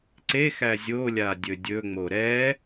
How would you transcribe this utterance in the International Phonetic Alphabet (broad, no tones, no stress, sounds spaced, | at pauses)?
ǀ e x æ zʲ o lʲ a dʲ ɵ dʲ ɵ ŋ͡m o ɾ ɛ